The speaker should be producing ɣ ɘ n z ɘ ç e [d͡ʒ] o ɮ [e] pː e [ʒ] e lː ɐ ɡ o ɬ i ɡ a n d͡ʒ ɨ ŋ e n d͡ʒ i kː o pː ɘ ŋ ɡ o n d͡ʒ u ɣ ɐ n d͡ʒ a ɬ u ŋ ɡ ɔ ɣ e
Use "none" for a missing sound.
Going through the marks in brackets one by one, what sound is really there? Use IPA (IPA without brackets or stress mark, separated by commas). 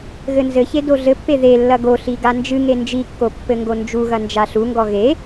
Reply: d, ɘ, ð